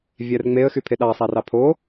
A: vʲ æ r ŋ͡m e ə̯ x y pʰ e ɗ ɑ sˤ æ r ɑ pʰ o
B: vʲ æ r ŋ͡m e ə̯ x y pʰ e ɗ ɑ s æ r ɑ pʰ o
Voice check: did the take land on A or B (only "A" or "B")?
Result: A